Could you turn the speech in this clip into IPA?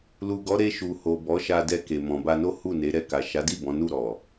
l u˨ ɡ ɔ˨˦ ɾ e˧ ʃ u˨ h o˨ b ɔ˨˦ ʃ a˧ d ɛ˧ k e˨ m ɔ̃˨ b a˧ n o˦ h u˦˨ n e˨˦ ɾ ɛ˦˨ k a˨ ʃ a˨˦ d i˦˨ b ɔ̃˨˦ n u˦˨ ɾ ɔ˨

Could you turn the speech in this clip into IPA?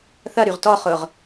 θ ɐ ɾ y ʁ t ɔ χ ʊ ʁ

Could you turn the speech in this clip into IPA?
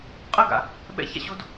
qʼ ə ɡ a̰ | ɓ ɛ̰ ç a̰ ɕ o d

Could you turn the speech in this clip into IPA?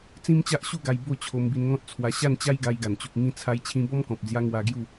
t͡s ĩ˦ m t͡ɕ a˦ ʔ ɕ u˥˧ ɡ a˧ j b o˥˧ t͡ɕʰ o˧ m b i˧ n ŋ ɔ̃˦ t̚ t͡sʰ w a˧ ɕ a˥˧ n t͡ɕ a˦ j ɡ a˧ j ɡ a˨˩ n t͡ɕ u˨ k̚ ŋ ĩ˧ t͡sʰ a˧ j t͡ɕʰ ĩ˧ b ɔ˦ m k ɔ̃˨ p̚ d͡z j a˧ ŋ w a˧ ɡ j u˥˧

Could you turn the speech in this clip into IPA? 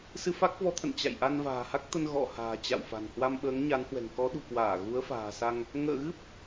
s ɨ˧ f a˦˥ k̚ v ɔ˨˦ t̪ʰ ə̰˧˨ n t͡ɕ a̰˧˨ j ʔ a˧ n v a̤ː˨˩ h a˦˥ k̚ t̪ ə˧ n ɣ ɔ̰˧˨ h a̤ː˨˩ t͡ɕ a̰˧˨ w f a̤˨˩ n h w a˧ m ɓ əː˨˦ ŋ ɲ a˨˦ n h w ɛ̤˨˩ ŋ k ɔ˨˦ ɗ ṳ˨˩ k w aː˧˩ ɣ u˨˦ ə̯ f a̤ː˨˩ s a˧ ŋ | ŋ ə̰ː˧˨ ɣ ɨ˦˥ p̚

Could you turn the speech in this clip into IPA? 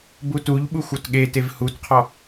b u t u ʎ ɓ u xʷ ɔ t ɠ e t e v h u t qʰ ɔ

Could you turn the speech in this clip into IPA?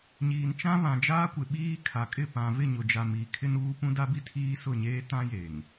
ɲ iː˨ n t͡ʃ ã˦ β ã˨ d͡ʒ aː˦ kʷ ɪ˨ ɓ iː˦ kʰ a˨ kʼ ɪ˦˨ p ã˨ v ɪ˦˨ ɲ ʊ˨ d͡ʒ a˨ m iː˨ kʰ ɪ˦ n uː˦ p ũ˦ d a˦ b i˦ tʰ iː˦ s ʊ˦˨ ɲ eː˦ t ã˦ j e˨ ŋ

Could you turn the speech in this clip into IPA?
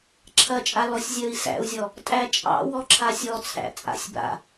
ǁʰ ɐ t͡ʃʼ a l ɔ sʲ zʲ əː i̯ s æ̰ u̯ zʲ ɔ | tʼ æ t͡ʃʼ ɑ̰ w ɔ ǁʰ a sʲ ɔ t͡sʰ æ̰ t͡sʼ a̰ sʲ b a̰

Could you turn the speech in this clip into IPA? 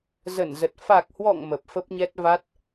z ə˧˩ n z ə˨˩ t̚ f a˨˩ k̚ h w ɔ̰˧˨ ŋ m ə˨˩ p̚ f ə˦˥ p̚ ɲ ɛ˦˥ t̚ v a˦˥ t̚

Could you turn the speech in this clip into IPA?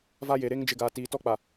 v a˦ j e˨ ɾ e˦ ŋ d͡ʒ ɪ˨ ɡ aː˨ t iː˨ t ɔ˦ k͡p a˨

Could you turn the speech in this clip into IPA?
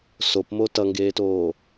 s o p m o t ʌ ŋ ɡ eː t oː

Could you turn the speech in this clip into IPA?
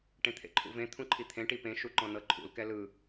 ʈ ẽ t̪ʰ ḛ ǃʰ ṵ v ẽ t̪ʰ ũ ǃʰ i t̪ʰ ẽ ʈ i p ẽ ʃ u ǃ ɔ̃ n ɤ ǃʰ ṵ l k ɛ l ɯ

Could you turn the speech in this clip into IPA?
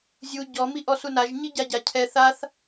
zʲ u ɟ ɔ m i ʔ ɔ s u n a ʒ ɲ i ɟ a ɟ a cʰ ɛ θ a θ

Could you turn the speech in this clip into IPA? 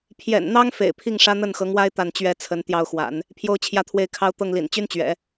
pʰ j ɛ̰˨˩ n n̪ ɑ˥ ŋ f ḛ˨˩ ɪ̯ pʰ i˥˩ ŋ ʂ ä˥ n̪ ə˥˩ n x ɤ˧˥ ŋ w a˥ ɪ̯ t̪ a˥˩ n t͡ɕ ɥ ɛ˥ t͡sʰ ə˧˥ n t̪ j ɑ˥˩ ʊ̯ x w a̰˨˩˦ n | pʰ j o˥˧ ʊ̯ t͡ɕʰ j ä˥˧ t̪ʰ w e˥˩ ɪ̯ kʰ ɑ˥ ʊ̯ t̪ ɤ˥˩ ŋ l ḭ˨˩ n t͡ɕ y˥ n t͡ɕ ɥ ɛ̰˨˩˦

